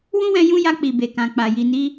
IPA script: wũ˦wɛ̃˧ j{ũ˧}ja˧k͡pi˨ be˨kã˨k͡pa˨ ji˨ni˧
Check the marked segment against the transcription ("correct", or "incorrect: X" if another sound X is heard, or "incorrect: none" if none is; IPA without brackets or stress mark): incorrect: ũ˦